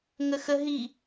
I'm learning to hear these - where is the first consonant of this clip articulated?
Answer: velum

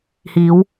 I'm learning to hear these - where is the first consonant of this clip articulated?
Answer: throat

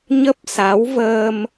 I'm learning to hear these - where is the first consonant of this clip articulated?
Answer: palate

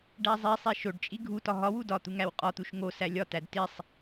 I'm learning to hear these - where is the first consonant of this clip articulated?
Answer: retroflex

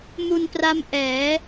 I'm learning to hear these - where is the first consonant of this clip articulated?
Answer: lips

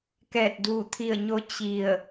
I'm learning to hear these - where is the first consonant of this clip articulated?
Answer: velum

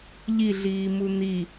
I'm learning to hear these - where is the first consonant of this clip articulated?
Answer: palate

